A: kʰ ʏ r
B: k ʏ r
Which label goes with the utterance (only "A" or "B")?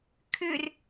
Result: A